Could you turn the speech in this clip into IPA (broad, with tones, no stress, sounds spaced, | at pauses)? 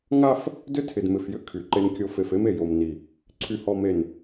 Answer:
ŋ a˦ f | d ʏ˦ tʰ ɪ˨ d m ɪ˨ f j ʏ˦ kʰ y˨ ǃ e˦ n kʲ o˦ f e˨ f e˦ m e˨ j o˨ m n i˨ | ǀʰ y˨ h ɔ˨ m e˨ n